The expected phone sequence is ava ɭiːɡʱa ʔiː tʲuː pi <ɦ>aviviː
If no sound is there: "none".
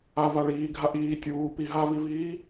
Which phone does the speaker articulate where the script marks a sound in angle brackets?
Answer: ɦ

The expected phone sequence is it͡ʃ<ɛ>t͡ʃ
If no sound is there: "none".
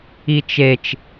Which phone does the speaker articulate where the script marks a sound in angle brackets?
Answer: e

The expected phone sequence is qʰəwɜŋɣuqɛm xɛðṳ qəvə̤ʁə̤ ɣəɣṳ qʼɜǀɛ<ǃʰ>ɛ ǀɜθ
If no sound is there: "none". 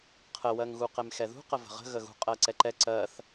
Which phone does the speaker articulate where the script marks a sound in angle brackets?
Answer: ǃ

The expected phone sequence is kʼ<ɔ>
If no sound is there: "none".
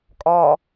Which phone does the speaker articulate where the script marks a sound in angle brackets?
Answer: ɔ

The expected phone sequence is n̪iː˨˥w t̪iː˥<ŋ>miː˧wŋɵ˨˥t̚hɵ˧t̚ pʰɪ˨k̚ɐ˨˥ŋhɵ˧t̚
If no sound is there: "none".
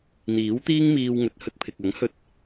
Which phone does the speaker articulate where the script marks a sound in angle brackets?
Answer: ŋ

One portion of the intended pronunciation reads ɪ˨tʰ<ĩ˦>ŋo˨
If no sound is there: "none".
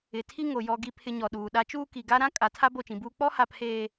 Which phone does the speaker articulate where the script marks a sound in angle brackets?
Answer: i˦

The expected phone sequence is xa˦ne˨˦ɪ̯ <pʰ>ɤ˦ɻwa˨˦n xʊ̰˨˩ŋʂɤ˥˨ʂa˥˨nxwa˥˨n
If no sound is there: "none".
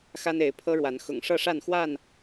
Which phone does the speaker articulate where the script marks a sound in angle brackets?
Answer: pʰ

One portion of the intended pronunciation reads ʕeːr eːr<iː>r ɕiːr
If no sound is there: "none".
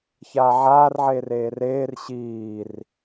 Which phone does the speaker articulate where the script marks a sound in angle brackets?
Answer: eː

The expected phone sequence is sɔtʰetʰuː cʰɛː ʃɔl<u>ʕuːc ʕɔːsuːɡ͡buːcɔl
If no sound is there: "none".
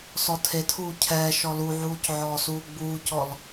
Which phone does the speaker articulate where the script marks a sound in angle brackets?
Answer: u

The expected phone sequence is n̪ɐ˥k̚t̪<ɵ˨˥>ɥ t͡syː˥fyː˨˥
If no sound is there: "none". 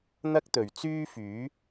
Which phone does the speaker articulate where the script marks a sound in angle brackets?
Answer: ɵ˨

